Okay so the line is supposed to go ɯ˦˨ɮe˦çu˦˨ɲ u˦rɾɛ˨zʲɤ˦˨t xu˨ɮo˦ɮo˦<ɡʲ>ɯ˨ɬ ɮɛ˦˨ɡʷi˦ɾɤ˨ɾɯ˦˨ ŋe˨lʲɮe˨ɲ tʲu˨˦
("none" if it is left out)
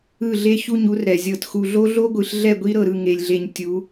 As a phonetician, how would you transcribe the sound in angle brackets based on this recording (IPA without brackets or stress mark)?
ɡʷ